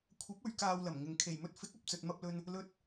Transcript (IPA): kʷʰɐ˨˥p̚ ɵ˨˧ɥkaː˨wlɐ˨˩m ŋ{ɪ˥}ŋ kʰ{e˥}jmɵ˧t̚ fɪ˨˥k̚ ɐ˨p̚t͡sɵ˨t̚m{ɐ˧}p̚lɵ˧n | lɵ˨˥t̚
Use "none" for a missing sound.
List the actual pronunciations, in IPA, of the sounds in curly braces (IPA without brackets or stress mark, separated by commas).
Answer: ɪ˨˩, e˨˩, ɐ˧